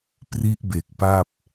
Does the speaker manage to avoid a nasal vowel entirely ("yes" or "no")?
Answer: yes